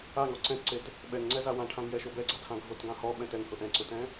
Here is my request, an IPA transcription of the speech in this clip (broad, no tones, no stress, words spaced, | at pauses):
aŋɔ ǀɛ̃tǀet | ɓɛŋŋ͡ǀɛza wãʈʰãŋjɛʃo bɛɡ͡ǀatʰã ɡʱotɡã hɔɓɛ̃t ɛŋhʊ ʔɛ̃ǀʊtɛ̃